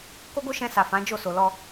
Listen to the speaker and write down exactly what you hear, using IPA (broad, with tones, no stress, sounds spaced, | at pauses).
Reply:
k o˦ ɡ o˦ ʃ ɛ̃˧ s a˨ f ã˨˦ d͡ʒ o˦˨ s o˨ l ɔ˧